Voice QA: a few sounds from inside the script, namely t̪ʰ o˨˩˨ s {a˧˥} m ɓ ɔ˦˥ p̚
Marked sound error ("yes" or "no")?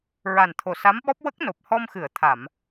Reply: no